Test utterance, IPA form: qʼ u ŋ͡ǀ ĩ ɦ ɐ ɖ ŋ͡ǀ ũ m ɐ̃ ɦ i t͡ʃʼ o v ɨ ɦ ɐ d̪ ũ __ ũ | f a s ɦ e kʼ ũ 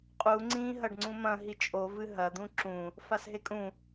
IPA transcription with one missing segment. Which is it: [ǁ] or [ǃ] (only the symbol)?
ǁ